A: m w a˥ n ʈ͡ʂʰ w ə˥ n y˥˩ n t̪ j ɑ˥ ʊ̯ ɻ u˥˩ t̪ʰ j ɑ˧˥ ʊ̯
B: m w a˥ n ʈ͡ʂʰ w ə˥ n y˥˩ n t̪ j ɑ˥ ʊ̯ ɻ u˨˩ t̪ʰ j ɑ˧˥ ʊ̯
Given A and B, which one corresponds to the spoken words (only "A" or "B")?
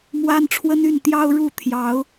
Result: A